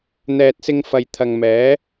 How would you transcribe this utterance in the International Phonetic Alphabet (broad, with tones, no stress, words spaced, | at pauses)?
n̪ɛː˨t̚sɪ˧ŋfɐ˨j t̪ʰɐ˨ŋmɛː˨˥